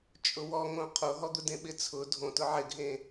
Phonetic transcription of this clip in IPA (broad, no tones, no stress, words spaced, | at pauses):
t͡ʃʼʊwɔŋõ qʰoɦɔd̪ʊdẽ ɓɪt͡sʰʊ dʱõ tʊʕɪɡʱẽ